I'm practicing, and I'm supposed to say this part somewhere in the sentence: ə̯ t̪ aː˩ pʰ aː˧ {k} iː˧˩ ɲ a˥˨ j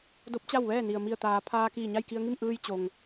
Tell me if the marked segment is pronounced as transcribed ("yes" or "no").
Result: yes